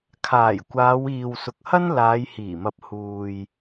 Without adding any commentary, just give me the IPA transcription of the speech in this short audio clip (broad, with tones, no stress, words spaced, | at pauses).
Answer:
kʰaː˨˩jkʷaː˨˧wiː˨w sʊ˨k̚hɐ˥n laː˨˧jhiː˨˩mɐ˨p̚ huː˨j